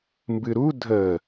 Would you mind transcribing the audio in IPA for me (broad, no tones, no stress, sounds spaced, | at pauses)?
m b ɨ ɾ u dʱ ə